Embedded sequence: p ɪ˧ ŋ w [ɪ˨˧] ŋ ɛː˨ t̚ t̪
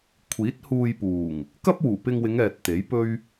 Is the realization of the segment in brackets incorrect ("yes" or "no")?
no